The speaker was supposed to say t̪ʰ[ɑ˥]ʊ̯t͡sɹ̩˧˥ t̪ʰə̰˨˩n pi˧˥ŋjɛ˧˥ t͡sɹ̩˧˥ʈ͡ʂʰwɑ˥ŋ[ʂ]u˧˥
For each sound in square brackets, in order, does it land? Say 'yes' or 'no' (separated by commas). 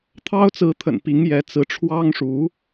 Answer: yes, yes